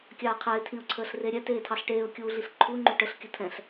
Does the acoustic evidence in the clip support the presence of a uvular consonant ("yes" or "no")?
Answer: yes